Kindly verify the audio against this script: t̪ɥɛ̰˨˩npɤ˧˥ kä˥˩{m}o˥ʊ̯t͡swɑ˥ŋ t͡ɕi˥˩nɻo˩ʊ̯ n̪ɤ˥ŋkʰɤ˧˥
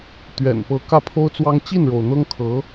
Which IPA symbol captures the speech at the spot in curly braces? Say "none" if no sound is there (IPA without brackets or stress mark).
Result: pʰ